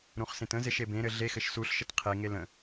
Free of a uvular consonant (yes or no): no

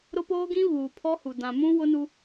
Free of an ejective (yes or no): yes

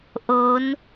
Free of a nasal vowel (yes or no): yes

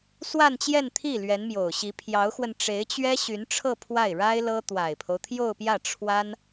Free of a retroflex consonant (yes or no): no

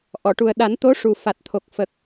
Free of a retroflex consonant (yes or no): no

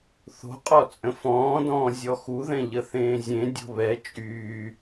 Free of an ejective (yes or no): no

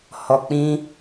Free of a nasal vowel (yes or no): no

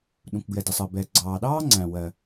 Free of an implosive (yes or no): no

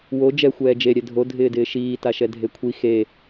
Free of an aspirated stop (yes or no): no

